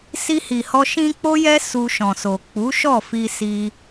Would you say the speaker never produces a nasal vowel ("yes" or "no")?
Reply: no